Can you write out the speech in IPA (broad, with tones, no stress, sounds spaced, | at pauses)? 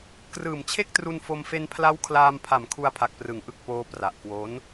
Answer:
k r ɯː˨˩ m t͡ɕʰ e˥˩ k̚ t r u˧ n f o˧ m f e˧ n pʰ l a˦˥ w kʰ l aː˧ m pʰ a˨˩ m kʰ u˧ a̯ pʰ a˨˩ k̚ p r ɯ˩˦ ŋ ʔ ɯ˨˩ k̚ p oː˧ p r a˨˩ ʔ k w o˦˥ n